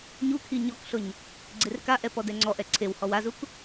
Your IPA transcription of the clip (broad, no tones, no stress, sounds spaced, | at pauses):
ɲ u kʰ i ɲ ɔ k ɬ ʊ ɲ | ɡ͡ǀ e r k a ʔ ɛ p ɔ d ɛ ŋ͡ǀ ɔ ʔ ɛ ǀʰ e w h ɔ w a z u k